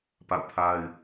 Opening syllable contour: falling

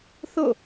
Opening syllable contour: falling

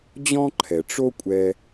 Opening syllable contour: high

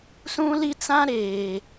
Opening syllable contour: high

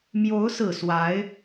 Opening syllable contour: rising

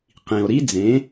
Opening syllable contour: low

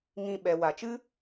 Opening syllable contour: low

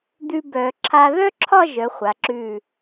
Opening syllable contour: high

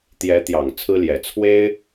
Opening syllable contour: rising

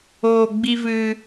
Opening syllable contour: low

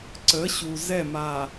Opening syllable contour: rising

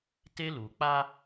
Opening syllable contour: high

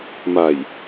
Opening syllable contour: low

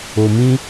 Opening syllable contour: low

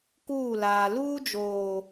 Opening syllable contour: falling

